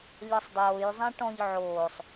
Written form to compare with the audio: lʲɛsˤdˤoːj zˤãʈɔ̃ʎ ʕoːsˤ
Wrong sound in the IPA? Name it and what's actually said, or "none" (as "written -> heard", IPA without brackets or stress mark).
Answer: none